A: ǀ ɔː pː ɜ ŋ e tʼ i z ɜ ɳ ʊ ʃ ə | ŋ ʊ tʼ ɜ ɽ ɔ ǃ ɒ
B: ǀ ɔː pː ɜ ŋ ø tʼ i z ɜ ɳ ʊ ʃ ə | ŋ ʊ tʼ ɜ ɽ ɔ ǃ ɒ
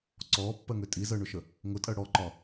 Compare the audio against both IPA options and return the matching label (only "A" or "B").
B